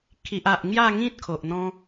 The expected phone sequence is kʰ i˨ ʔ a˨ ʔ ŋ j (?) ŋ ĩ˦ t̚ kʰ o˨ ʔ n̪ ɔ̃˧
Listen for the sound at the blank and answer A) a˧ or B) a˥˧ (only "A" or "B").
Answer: B